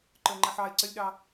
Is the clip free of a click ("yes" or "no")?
no